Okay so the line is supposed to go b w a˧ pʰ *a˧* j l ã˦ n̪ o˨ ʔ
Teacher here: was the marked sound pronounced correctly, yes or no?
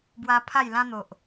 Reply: no